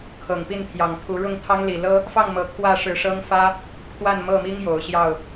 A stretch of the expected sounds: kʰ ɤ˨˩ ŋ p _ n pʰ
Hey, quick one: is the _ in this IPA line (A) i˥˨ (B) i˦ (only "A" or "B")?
A